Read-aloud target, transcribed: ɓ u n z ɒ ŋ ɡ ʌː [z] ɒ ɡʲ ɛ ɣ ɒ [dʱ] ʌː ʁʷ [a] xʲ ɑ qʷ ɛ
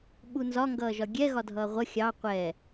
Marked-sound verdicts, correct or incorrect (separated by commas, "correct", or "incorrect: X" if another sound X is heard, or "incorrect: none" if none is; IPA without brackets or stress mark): incorrect: ʒ, correct, incorrect: ʌ